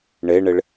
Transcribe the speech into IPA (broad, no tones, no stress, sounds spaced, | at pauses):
ɳ e ɳ ɪ ɭ